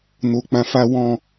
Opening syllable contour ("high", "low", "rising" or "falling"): low